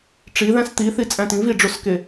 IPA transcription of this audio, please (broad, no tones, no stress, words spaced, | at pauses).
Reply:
ʈ͡ʂiðæ̃s t̪iθit͡sʼæ̃ tĩviɖ͡ʐoske